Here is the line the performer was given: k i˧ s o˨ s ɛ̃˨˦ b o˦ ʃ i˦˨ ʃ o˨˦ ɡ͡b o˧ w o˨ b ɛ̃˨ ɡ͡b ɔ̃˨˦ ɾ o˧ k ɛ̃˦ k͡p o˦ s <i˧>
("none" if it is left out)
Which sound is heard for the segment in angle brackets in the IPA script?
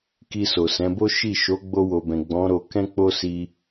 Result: i˧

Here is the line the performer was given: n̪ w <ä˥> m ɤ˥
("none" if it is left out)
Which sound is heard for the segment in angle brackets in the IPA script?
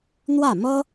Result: ä˥˩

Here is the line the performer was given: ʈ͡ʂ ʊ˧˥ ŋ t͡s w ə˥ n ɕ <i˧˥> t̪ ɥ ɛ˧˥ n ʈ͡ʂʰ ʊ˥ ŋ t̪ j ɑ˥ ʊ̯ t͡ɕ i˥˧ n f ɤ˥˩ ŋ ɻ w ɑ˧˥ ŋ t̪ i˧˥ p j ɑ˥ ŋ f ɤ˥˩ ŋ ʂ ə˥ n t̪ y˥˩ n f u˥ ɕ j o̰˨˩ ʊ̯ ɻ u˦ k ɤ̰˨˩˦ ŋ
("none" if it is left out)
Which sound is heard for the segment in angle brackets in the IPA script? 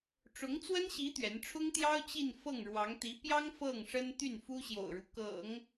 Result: i˧˥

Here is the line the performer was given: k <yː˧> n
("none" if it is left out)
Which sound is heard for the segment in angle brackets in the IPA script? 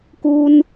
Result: uː˧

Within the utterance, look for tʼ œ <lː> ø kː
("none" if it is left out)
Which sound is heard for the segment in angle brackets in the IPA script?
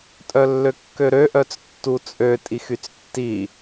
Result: lː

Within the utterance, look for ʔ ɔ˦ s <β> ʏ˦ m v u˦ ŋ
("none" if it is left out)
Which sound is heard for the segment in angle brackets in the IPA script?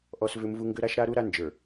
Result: v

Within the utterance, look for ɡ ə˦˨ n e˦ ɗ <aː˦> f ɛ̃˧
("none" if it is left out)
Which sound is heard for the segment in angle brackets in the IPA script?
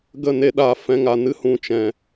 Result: aː˧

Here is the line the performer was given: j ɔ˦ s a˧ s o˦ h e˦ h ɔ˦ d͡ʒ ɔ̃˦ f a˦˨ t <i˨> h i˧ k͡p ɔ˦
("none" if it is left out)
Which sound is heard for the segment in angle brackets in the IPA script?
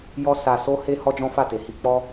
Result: e˨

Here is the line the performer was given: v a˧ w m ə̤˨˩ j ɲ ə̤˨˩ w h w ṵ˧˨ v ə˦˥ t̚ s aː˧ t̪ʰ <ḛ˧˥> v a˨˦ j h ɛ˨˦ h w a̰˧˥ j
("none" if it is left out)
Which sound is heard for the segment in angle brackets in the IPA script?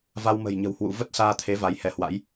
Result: e˨˦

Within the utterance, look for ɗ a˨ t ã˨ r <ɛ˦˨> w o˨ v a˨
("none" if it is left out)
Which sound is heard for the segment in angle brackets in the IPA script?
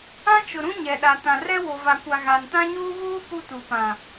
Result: ɛ˦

